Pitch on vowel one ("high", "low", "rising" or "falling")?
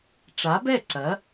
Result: rising